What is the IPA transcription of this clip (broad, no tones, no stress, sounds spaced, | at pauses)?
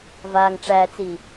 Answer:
v a ŋ ʈ͡ʂ æ t͡s i